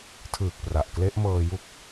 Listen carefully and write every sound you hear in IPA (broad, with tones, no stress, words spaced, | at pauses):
tʰɯː˨˩k̚pra˨˩ʔkle˦˥ʔ mɤː˧ju˦˥k̚